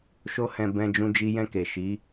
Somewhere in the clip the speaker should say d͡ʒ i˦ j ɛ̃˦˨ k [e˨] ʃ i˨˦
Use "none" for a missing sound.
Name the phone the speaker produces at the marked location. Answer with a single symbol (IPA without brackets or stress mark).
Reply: e˨